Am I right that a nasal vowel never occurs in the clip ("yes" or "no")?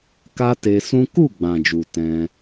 no